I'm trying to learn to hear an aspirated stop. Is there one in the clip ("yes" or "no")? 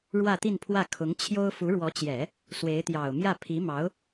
yes